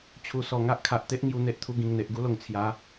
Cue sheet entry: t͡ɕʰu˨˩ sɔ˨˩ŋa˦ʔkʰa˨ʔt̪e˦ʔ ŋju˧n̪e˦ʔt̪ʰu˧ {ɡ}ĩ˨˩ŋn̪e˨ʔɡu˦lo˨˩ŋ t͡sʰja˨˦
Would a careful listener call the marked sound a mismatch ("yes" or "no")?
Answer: no